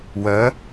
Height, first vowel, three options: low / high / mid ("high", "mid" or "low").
mid